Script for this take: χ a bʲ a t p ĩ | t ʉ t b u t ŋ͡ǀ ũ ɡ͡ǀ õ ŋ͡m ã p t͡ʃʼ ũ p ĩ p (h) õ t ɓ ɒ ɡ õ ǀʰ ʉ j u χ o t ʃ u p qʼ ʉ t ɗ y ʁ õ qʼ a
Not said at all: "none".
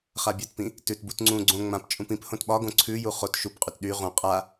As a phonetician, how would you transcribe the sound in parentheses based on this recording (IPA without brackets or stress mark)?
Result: h